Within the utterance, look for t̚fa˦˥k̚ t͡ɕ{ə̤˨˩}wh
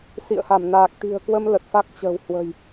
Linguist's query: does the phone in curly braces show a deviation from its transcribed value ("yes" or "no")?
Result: no